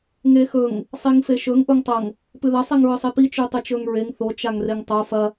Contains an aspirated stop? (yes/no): no